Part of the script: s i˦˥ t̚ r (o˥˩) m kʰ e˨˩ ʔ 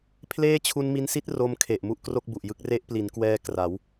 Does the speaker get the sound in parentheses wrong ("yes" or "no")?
yes